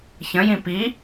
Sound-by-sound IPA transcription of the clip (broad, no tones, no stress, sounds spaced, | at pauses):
ç ə̃ j ĩ p i